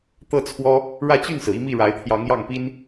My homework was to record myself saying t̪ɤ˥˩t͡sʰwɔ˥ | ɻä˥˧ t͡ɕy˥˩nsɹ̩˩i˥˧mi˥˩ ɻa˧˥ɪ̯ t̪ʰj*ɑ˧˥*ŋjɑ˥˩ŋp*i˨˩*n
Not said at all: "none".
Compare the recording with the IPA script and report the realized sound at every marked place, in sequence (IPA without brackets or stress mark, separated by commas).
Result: ɑ˧˥, i˥